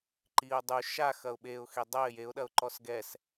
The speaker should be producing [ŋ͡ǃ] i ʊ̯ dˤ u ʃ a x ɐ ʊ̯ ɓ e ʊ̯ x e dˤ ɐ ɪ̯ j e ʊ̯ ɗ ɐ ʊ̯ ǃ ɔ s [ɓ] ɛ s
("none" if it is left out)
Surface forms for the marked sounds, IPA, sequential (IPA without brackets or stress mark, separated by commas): ǃ, ɡ